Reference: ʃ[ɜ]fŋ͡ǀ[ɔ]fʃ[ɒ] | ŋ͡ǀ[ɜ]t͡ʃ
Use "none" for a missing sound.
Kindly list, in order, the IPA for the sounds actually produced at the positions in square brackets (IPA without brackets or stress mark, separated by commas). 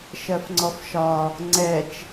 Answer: ɜ, ɔ, ɒ, ɛ